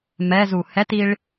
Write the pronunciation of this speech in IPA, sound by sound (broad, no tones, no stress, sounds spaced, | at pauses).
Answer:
m ɛ z u h ɛ t i ɭ